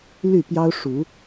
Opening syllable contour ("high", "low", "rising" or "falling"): falling